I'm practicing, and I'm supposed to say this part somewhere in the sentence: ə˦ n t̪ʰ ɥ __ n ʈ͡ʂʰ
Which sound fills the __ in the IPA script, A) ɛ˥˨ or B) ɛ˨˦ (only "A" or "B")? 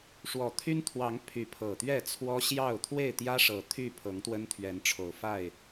B